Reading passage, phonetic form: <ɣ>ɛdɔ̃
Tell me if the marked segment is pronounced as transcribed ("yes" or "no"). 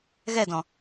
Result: yes